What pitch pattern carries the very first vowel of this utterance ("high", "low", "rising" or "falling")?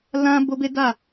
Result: high